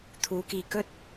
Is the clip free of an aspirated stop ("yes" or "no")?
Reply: no